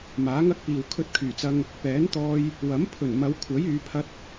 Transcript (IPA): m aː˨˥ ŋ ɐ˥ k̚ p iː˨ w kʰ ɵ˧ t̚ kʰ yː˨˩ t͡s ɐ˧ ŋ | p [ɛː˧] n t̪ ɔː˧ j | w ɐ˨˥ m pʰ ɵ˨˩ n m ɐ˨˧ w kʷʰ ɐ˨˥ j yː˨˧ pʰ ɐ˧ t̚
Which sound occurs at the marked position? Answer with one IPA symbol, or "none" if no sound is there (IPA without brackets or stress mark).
ɛː˨˥